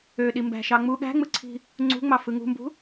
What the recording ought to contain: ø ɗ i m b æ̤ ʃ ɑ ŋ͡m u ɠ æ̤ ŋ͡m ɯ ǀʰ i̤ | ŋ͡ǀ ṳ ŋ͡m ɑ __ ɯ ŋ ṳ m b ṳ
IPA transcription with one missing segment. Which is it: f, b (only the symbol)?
f